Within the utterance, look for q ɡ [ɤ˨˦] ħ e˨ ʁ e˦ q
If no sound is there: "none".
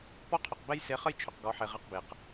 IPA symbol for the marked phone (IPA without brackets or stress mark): ɔ˨˦